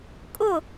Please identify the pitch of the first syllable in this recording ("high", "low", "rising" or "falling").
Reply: falling